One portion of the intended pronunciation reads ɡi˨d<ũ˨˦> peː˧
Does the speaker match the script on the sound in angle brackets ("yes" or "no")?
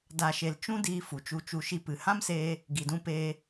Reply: no